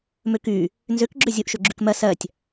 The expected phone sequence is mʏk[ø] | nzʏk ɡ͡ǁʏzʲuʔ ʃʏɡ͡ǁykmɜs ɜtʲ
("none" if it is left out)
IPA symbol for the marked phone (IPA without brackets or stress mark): y